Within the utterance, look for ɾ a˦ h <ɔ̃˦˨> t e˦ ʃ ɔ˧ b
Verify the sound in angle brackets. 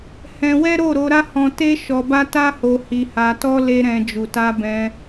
incorrect: ɔ̃˧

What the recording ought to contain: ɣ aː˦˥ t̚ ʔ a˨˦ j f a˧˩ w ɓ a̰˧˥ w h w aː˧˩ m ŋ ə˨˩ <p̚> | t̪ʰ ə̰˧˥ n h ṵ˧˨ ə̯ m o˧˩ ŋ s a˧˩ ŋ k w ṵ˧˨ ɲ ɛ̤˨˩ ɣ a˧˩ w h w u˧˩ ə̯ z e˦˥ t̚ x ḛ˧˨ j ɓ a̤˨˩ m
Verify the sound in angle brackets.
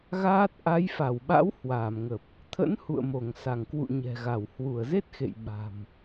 correct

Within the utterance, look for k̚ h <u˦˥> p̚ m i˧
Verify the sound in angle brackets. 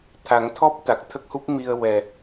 correct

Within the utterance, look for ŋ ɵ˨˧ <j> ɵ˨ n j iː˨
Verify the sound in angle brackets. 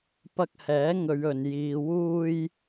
incorrect: ɥ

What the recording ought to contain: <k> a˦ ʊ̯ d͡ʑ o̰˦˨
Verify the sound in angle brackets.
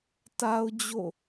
incorrect: t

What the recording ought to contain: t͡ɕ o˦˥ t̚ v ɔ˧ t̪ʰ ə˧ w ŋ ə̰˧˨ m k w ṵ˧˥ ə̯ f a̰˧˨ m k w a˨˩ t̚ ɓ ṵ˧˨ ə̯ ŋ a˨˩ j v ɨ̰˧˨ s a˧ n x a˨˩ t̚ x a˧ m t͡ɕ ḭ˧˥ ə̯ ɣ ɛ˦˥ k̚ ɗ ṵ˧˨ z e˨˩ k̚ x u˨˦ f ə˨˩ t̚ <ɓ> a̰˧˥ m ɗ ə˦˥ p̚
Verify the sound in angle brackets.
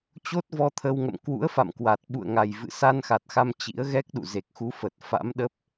incorrect: f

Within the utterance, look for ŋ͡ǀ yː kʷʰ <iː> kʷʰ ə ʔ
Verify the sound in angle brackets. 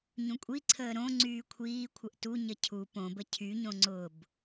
correct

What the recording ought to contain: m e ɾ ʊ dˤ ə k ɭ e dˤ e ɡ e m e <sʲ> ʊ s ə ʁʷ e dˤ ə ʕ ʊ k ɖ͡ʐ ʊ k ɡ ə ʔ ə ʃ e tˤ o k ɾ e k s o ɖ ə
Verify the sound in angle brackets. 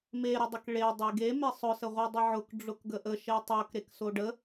incorrect: sˤ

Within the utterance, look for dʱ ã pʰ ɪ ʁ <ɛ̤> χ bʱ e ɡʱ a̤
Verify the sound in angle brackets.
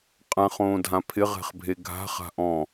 correct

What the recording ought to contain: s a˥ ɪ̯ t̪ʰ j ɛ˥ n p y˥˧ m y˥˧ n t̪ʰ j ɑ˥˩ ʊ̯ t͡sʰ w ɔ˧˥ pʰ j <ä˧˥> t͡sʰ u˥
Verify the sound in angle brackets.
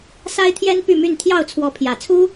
incorrect: ä˨˩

